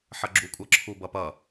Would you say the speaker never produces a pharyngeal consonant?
no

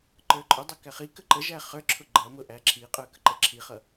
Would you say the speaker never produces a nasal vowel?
yes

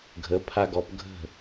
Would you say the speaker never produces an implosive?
yes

